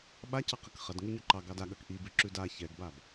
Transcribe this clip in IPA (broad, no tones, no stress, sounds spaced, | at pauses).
ɓ a c ɑ q ɐ k χ ɐ d ŋ ʉ ɲ ø ǃ ɑ ɡ ɑ d a ɠ ɐ k ʔ i b ʉ ǁ ʉ d a ç ɛ ɡ b a b